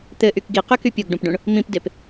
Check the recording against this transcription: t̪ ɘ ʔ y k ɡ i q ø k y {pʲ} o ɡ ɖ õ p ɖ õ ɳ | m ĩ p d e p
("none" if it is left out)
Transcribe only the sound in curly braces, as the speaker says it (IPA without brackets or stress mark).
pʲ